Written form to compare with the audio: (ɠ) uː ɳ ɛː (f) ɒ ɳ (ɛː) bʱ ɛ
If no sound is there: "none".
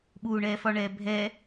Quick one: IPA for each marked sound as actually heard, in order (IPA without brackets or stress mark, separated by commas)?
ɓ, f, ɛː